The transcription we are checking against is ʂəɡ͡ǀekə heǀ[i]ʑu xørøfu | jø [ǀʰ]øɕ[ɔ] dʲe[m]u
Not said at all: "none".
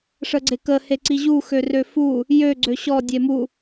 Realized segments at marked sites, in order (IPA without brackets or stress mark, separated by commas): i, ɡ͡ǀ, ɔ, m